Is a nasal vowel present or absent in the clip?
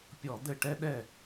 absent